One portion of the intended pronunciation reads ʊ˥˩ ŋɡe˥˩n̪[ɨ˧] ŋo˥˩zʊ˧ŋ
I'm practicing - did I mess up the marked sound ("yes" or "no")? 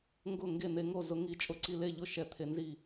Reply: yes